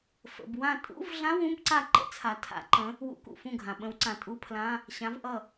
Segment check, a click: present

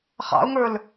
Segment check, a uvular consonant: present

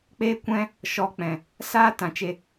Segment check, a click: absent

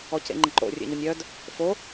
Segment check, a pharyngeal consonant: absent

